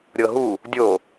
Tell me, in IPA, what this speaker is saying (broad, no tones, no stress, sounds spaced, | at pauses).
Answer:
ɾʲ ɤ ɦ u | dʲ o